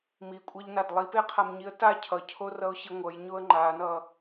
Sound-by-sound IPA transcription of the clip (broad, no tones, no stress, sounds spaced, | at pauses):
m i kʷʼ a ʎ n a d lˠ i p e qʰ a m ɲ i ə̯ t a cʰ ʌ cʰ o r ʌ ʊ̯ ɕ i ŋʷ ʌ j ɲ o ə̯ ŋ͡ǃ a n ʌ